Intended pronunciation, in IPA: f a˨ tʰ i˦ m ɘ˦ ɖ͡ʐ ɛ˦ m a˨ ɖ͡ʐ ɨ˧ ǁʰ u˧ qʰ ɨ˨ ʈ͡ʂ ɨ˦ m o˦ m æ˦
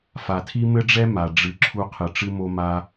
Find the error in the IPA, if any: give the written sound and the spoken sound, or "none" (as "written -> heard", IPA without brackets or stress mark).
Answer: æ˦ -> a˦